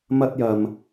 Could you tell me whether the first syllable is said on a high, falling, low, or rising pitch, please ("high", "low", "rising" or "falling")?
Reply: high